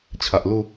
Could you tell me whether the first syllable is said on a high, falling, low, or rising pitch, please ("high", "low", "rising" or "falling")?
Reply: low